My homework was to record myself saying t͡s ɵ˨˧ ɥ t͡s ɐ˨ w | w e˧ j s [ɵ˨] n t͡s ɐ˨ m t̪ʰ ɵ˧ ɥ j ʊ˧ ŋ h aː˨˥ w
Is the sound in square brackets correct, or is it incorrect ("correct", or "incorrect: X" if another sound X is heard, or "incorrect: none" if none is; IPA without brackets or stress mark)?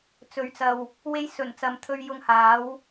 incorrect: ɵ˨˩